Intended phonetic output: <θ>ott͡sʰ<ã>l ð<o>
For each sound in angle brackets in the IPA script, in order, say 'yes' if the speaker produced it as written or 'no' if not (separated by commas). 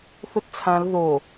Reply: yes, yes, yes